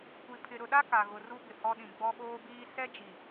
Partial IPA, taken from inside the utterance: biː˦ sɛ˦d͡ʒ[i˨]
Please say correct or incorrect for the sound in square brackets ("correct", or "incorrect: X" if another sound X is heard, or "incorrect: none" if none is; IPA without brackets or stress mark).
correct